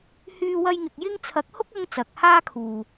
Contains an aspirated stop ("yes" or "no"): yes